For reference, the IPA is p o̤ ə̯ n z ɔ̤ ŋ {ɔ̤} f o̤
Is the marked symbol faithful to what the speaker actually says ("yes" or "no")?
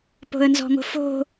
no